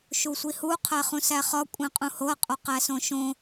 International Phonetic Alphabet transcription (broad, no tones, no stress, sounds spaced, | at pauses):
ʃ u sʷ i h u qʰ æ χ ũ s æ χ ɒ kʷʼ ẽ qʼ ũ h o ɐ̯ qʼ o q æ s õ ʃ õ